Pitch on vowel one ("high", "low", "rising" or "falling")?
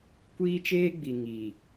high